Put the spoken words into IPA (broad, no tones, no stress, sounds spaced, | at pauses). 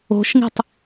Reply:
o̤ ʃ ŋ i̤ tˤ